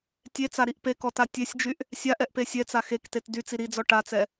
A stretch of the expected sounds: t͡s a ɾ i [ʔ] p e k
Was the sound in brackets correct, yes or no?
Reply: yes